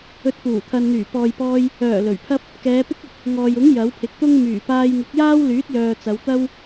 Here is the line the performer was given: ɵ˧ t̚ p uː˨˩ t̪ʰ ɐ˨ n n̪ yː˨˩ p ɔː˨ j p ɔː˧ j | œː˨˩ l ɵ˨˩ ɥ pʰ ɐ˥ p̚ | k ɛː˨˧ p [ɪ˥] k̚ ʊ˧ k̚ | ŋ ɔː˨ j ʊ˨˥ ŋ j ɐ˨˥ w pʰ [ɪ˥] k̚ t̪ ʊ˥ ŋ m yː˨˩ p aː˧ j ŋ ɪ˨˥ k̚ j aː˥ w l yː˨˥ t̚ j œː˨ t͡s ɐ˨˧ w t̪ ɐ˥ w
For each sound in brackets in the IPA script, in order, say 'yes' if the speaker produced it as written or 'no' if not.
yes, no

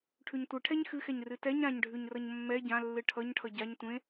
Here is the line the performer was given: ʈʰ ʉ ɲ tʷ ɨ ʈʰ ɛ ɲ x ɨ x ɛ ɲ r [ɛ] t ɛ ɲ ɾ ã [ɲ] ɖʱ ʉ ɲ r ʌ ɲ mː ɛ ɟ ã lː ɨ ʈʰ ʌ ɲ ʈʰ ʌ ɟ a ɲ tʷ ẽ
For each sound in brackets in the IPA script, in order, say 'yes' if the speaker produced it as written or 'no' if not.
no, yes

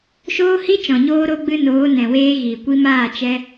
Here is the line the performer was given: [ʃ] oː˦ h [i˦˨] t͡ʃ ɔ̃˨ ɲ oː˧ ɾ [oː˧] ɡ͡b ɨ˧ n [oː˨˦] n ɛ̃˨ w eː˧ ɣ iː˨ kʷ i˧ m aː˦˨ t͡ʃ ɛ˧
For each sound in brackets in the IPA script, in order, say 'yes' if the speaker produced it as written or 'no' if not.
yes, no, no, yes

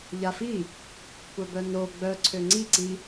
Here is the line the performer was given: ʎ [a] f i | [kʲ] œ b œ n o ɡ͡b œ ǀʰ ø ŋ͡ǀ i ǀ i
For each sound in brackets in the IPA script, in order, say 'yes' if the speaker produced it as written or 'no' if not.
yes, no

